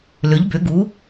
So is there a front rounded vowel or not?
yes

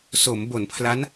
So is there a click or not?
no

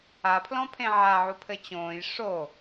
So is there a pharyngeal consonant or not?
yes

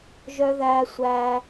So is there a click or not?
no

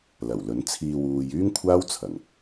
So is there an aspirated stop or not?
yes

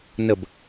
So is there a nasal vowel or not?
no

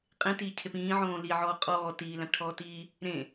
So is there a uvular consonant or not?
yes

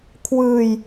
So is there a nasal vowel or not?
no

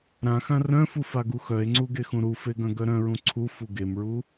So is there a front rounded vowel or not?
yes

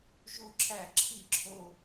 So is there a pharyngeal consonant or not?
no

